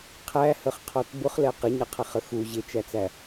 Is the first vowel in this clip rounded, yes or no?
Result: no